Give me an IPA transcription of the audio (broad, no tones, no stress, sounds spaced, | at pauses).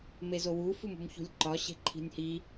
m e z o w u f u m ṳ m ç ṳ lʲ ǃ ɒ ɕ e̤ ǃʰ i̤ nʲ h i